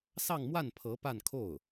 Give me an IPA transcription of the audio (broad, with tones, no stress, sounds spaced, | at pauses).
s ɑ˥˧ ŋ m w a˥˩ n pʰ ɤ˧˥ p a˥˧ n kʰ o˥˩ ʊ̯